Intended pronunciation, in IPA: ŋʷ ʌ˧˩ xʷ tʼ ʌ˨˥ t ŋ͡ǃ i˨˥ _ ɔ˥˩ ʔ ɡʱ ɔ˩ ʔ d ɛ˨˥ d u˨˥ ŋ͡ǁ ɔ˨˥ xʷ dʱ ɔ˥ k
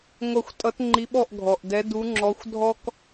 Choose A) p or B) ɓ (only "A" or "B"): B